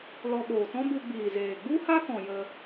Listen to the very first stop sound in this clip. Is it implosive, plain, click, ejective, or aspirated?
implosive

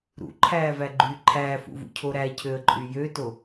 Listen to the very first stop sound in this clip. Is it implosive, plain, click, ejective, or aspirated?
click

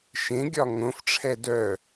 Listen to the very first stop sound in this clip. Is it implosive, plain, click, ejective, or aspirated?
plain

